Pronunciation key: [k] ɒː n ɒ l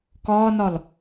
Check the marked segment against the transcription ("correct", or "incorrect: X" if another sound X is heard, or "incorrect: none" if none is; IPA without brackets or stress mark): correct